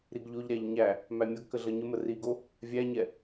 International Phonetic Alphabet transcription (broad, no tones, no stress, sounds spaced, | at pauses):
ɾ i ɡ ʎ o ʎ ɾ æ ʎ ɲ æ | m æ mʲ ʌ ɡ k ə ɮ ʌ ɲ ə m ə r i ɡ o | vʲ æ ɲ ɛ